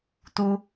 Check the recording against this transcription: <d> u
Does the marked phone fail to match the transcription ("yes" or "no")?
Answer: yes